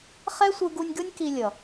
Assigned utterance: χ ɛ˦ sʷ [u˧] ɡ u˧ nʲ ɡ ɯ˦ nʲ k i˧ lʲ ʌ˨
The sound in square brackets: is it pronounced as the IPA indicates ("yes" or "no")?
no